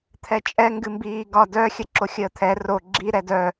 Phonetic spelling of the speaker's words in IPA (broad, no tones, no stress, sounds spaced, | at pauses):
t̪ʰ ɛ t͡ʃʼ ɛ ŋ ɡ ɨ m b iː ɡ ɒ d œ xʲ ə ǁ o xʲ əː t̪ʰ ɛ r o ɡ͡ǁ i ɾ ɛ d œ